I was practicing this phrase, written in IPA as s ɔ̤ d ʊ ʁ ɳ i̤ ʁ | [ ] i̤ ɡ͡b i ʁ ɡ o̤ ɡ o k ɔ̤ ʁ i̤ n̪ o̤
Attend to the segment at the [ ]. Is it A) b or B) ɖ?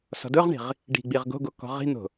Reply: B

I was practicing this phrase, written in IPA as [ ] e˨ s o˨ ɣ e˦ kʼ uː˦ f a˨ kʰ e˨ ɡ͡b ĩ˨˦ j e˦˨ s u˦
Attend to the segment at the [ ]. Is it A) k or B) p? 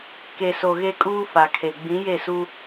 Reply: A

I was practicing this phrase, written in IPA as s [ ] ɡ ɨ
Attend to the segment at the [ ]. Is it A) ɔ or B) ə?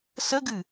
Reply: B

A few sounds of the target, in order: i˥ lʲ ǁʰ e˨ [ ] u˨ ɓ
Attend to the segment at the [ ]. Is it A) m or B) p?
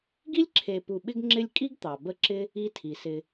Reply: B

